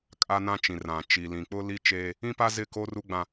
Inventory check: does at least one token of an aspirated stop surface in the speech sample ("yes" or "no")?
no